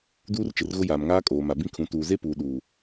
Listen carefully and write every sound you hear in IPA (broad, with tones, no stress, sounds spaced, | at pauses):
d uː˦ r t͡ʃ ɪ˨ r ɣ ʊ˦ j aː˨ m ŋ aː˦ kʼ oː˨ m a˨ b ĩ˦ kʰ ũ˨˦ t uː˨ z e˦ p uː˨ ɗ uː˨